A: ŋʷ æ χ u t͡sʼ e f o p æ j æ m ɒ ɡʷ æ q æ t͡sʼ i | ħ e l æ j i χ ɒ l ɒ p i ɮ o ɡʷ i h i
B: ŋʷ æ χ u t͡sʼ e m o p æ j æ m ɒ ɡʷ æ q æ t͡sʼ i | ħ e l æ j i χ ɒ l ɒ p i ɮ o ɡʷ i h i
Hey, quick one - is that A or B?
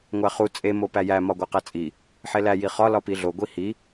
B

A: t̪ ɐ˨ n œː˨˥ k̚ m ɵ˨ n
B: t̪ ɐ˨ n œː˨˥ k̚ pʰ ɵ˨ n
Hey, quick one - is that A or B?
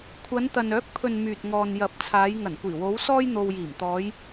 B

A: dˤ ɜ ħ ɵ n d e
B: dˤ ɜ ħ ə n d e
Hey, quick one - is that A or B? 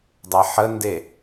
B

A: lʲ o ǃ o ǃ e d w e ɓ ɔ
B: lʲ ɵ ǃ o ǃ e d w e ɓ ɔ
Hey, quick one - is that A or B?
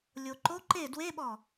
A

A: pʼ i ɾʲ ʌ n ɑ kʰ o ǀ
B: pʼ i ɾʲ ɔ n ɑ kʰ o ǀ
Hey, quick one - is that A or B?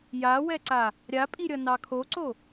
A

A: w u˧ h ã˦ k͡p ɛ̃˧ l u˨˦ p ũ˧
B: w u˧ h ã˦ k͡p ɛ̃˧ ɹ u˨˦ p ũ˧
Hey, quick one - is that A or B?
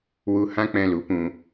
A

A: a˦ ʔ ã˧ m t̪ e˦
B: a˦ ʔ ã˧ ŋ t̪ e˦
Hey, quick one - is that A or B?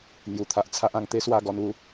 B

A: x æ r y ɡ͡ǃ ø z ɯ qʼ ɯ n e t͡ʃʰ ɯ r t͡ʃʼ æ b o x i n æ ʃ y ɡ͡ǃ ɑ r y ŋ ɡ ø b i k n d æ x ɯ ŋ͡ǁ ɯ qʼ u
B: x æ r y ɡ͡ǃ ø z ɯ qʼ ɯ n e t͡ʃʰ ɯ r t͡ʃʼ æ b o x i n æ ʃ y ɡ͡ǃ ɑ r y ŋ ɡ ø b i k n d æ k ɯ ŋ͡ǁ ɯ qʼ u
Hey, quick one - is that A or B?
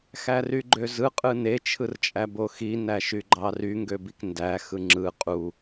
A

